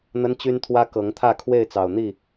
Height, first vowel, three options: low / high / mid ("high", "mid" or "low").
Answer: mid